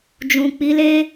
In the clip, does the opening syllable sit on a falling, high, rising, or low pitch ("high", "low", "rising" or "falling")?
low